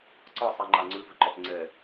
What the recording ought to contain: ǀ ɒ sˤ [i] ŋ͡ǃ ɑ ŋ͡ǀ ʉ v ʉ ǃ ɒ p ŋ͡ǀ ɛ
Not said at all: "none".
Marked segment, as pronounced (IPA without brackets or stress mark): i